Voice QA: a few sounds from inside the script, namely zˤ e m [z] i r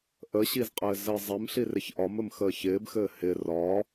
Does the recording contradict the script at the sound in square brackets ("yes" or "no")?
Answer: yes